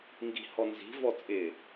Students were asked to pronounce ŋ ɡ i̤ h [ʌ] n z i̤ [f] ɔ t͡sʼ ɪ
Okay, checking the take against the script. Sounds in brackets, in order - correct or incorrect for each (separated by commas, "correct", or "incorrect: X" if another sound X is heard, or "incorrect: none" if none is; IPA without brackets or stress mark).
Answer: incorrect: ɔ, incorrect: v